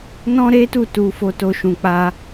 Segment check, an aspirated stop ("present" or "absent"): absent